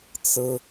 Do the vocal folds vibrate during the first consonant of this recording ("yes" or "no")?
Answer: no